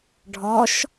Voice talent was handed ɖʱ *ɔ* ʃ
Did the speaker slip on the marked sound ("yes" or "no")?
no